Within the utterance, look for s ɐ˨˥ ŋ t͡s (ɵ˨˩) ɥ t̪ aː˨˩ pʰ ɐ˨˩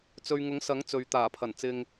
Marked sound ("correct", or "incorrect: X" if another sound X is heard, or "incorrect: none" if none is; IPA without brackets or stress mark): incorrect: ɵ˨